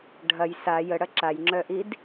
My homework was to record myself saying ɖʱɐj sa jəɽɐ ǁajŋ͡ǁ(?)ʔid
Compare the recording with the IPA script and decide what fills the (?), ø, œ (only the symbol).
œ